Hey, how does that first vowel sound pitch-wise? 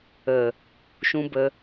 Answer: low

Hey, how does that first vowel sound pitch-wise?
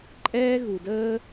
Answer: high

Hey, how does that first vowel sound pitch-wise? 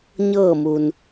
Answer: falling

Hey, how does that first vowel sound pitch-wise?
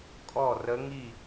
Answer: falling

